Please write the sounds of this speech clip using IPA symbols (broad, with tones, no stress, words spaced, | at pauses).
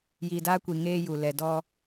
ji˨da˦kʷi˨ ŋeː˦ju˨ lɛ˨dɔ˦